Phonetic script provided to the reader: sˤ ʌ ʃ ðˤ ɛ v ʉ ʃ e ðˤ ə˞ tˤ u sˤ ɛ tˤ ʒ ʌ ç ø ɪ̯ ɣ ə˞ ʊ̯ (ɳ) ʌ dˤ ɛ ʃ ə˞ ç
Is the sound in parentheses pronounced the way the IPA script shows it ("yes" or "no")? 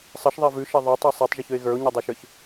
no